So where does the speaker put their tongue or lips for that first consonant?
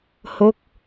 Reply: throat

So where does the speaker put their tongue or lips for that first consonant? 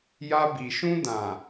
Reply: palate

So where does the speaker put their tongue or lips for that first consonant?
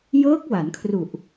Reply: palate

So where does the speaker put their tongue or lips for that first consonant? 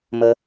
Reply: lips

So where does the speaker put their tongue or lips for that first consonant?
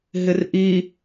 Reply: throat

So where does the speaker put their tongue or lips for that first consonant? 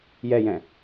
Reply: palate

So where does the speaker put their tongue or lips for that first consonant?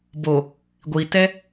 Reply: lips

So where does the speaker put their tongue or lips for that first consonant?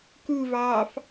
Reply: velum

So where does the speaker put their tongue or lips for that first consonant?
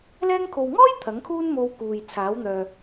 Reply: tongue tip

